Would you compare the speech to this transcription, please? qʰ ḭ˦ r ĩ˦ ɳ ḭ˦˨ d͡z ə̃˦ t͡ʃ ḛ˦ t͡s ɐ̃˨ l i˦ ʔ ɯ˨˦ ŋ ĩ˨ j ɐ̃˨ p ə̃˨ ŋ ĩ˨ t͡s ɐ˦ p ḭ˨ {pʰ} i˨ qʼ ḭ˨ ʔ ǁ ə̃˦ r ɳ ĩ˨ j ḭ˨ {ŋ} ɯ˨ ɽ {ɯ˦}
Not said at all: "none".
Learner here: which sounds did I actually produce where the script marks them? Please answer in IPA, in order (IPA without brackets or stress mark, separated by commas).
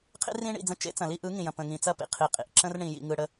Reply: qʰ, ŋ, ə˦